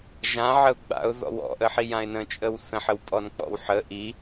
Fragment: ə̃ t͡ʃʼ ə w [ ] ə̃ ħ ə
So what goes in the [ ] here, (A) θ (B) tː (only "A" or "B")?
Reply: A